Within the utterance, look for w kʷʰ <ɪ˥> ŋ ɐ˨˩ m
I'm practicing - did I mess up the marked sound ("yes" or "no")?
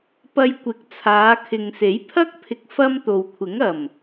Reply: yes